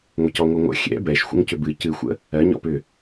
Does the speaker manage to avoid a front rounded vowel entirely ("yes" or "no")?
no